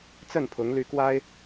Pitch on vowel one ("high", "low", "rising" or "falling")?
falling